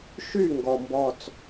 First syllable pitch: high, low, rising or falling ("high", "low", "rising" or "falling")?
falling